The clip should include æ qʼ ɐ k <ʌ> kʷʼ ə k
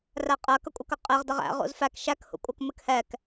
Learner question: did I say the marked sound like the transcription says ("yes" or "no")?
yes